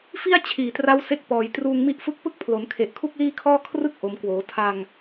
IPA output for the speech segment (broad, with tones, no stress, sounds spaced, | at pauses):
f i˥˩ a̯ t͡ɕʰ iː˨˩ t r a˦˥ w s e˦˥ k̚ p ɔː˨˩ j t r uː˧ ŋ m i˦˥ ʔ f ɯ˥˩ k̚ p ɯ˥˩ k̚ pʰ l o˩˦ n kʰ e˨˩ ʔ kʰ u˥˩ k̚ l iː˥˩ kʰ ɔː˥˩ kʰ r ɯ˦˥ k̚ ʔ o˩˦ m k w oː˩˦ tʰ a˧ ŋ